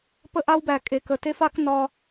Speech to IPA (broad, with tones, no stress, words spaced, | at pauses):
pə˦ʔa˦wbæ˨ kʼe˨kə˨ te˦fa˦k nɒ˦